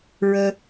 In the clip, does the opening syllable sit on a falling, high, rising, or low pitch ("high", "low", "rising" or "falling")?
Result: high